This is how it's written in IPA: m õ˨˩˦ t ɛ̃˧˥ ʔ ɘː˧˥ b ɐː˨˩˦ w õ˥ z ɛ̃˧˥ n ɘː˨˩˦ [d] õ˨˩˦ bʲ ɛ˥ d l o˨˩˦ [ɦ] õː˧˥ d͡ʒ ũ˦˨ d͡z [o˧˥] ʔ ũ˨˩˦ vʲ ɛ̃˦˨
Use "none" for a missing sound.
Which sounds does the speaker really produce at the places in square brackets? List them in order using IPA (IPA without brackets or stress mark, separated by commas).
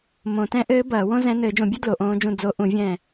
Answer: d͡ʒ, ʔ, o˧˥